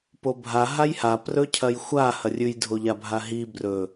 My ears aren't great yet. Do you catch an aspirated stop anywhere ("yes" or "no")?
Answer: yes